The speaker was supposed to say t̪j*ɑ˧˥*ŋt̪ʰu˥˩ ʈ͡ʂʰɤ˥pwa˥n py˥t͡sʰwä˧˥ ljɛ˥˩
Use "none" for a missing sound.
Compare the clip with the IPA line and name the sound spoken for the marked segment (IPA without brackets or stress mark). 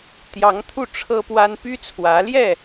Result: ɑ˧˥